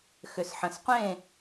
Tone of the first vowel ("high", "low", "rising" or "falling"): low